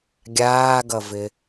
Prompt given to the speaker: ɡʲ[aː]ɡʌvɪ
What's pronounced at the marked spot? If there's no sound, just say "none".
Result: aː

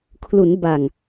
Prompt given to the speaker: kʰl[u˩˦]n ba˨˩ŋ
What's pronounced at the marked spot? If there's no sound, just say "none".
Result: u˩˦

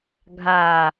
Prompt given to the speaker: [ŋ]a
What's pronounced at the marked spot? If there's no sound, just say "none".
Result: ɡʱ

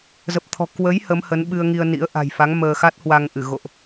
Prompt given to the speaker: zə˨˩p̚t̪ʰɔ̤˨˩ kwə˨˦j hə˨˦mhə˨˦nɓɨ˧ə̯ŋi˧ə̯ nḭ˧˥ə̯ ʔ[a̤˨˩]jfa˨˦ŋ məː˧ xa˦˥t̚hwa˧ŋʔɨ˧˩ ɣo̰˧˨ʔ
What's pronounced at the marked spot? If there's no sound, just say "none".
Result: a̤˨˩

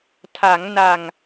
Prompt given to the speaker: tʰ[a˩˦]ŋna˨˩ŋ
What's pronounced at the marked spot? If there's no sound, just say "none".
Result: a˩˦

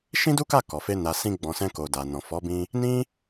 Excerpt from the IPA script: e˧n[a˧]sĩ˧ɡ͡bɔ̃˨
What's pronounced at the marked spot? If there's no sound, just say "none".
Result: a˨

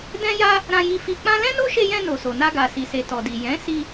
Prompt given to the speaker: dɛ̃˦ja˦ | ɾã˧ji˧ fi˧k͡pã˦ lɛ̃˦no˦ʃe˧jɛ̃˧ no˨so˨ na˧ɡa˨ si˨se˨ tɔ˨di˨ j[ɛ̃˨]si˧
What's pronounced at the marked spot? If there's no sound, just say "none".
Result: ɛ̃˨˦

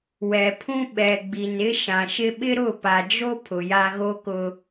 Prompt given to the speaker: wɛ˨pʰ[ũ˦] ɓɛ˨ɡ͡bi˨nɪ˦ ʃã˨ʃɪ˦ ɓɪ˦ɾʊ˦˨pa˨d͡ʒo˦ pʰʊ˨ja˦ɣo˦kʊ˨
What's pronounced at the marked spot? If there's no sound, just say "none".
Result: ũ˦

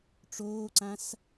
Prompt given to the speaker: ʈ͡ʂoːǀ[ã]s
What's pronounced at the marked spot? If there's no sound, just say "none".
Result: ã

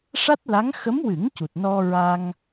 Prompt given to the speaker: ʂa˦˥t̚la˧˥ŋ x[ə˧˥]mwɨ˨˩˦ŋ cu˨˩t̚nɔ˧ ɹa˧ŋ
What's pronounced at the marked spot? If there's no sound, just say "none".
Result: ə˧˥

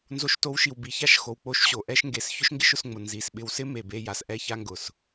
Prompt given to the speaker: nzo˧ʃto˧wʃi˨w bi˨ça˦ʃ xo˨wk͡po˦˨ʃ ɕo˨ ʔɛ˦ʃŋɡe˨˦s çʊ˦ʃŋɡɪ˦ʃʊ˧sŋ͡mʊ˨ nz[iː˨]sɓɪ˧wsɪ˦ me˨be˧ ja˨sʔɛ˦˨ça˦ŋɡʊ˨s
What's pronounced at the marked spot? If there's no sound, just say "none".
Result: i˨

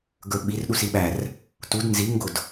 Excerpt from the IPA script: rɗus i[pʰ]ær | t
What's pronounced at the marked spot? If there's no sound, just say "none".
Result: ɓ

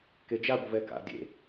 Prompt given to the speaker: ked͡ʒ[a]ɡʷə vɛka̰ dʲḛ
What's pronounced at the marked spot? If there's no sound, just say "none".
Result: a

